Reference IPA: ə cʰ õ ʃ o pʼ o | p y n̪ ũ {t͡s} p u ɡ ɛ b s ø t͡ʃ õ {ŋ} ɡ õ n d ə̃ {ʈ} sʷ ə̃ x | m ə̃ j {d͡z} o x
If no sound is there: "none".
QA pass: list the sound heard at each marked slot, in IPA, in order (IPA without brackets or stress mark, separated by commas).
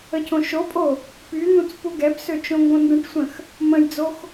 t͡s, ŋ, ʈ, d͡z